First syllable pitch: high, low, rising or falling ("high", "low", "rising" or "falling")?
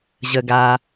low